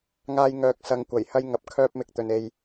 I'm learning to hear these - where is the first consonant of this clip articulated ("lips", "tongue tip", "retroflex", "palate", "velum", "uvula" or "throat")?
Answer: velum